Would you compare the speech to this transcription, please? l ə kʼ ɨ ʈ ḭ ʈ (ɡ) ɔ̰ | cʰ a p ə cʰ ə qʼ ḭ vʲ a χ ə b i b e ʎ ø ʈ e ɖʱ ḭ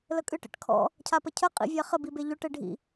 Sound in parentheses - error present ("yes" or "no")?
yes